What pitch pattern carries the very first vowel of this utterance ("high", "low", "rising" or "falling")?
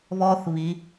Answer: high